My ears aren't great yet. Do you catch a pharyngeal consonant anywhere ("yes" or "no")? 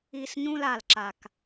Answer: no